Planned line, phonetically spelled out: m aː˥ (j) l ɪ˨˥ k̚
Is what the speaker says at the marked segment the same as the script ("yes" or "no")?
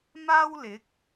no